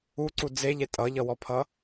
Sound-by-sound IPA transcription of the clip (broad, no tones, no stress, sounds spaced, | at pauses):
u ǀ u d͡z e ʎ e tʼ ʌ ʎ ʌ w ɔ pʰ ʌ